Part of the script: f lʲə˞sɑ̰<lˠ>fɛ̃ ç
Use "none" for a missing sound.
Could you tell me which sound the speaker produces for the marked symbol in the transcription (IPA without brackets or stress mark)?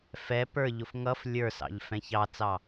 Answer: ʎ